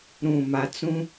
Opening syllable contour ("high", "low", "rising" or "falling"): low